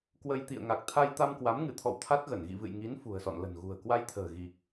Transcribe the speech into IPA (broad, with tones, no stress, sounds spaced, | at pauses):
k w ə˧ j t̪ ḭ˧˨ ə̯ ŋ a˨˩ k̚ t̪ʰ a˧ j t̪ a˧ m k w a˨˦ m ŋ ɨ˧˩ t̪ʰ ɔ̰˧˨ w t̪ʰ a˦˥ t̚ ɣ ə˧˩ n ɣ ḭ˧˨ v ɨ̰˧˨ j ŋ i˨˦ n f ṳ˨˩ ə̯ s ɔ̰˧˨ n l ə̤˨˩ n ɣ ṳ˨˩ ə̯ k w a˧ j t̪ʰ ə̤ː˨˩ ɣ i˨˩ k̚